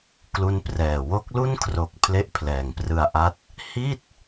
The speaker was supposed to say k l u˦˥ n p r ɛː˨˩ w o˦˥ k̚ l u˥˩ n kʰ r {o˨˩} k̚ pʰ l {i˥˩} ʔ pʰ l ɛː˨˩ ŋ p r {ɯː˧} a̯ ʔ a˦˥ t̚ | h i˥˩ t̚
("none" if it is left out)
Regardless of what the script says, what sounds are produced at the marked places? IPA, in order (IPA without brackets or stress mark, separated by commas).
o˨˩, e˥˩, ɯ˧